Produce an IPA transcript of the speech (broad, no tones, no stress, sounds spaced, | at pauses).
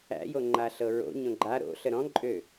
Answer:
æ̰ j o ŋ͡ǃ a ɬ ɤ ɹ o̰ ɲ õ ɡ͡ǃ a ɾ o̰ ɬ ə ɾ ɔ̃ ǃʼ ø